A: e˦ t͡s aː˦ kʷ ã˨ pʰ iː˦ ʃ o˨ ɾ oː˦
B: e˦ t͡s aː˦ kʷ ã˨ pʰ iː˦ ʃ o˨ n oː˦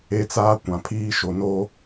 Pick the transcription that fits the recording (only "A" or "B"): B